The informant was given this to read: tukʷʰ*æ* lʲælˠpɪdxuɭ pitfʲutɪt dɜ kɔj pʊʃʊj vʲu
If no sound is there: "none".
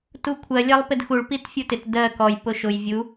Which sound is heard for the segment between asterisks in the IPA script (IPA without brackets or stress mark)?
ɜ